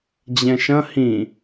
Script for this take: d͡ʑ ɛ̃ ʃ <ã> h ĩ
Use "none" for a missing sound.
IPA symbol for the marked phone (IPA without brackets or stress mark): ɐ̃